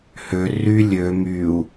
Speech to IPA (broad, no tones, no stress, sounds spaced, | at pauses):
h ø r y lʲ ø m y u̯